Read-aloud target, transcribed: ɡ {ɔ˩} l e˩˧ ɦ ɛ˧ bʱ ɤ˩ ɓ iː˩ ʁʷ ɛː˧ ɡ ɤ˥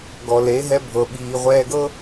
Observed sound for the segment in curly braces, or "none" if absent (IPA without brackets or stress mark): ɔ˩